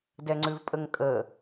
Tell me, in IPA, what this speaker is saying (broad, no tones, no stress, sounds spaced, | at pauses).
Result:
d ɛ ŋ͡ǀ ʉ v pʼ ə ŋ kʼ ə